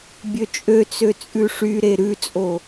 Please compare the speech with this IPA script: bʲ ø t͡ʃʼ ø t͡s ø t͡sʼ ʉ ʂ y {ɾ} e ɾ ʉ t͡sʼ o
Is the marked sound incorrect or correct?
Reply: correct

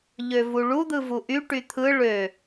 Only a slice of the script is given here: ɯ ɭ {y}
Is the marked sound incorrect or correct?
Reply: incorrect: ø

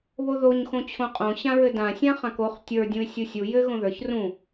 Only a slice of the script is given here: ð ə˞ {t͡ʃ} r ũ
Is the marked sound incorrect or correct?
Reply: incorrect: ç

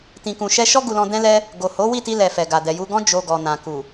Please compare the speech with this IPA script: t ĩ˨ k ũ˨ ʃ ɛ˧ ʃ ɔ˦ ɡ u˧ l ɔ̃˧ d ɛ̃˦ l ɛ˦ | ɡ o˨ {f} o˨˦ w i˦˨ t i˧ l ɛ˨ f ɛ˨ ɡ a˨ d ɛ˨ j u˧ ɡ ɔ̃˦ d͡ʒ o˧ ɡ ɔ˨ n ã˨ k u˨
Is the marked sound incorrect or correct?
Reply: incorrect: h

